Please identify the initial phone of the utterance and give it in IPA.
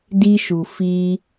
d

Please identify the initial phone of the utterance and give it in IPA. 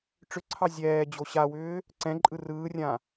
ʈ͡ʂ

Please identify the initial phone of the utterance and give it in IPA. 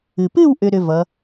ɨ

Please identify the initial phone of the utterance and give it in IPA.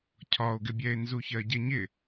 cʰ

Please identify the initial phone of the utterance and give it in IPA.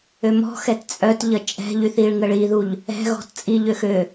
ø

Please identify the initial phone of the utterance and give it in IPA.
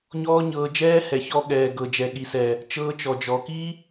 ɲ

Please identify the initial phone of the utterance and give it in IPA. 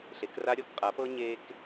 ɬ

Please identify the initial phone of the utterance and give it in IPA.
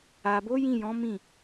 a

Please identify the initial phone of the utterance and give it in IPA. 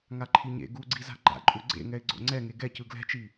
ŋ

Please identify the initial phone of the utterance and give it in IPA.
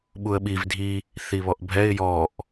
ɓ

